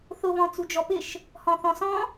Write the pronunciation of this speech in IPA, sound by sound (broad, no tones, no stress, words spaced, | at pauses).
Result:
θʊβɔ̃ t͡sud͡ʒɔpɪʃ | hɔ̃θɔ̃sɔ̃